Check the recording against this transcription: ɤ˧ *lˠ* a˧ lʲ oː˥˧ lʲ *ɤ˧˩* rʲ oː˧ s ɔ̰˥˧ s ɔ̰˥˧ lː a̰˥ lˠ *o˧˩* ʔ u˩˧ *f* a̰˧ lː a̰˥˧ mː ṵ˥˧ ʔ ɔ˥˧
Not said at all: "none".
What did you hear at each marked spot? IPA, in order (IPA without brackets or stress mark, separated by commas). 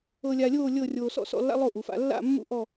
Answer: lʲ, ɤ˥˧, o˥˧, f